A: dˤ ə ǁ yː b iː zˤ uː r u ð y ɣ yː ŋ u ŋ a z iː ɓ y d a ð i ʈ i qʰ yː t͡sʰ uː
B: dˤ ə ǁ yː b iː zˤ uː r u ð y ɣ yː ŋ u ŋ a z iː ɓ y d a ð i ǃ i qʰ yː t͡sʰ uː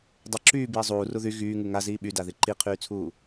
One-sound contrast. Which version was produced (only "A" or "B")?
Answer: B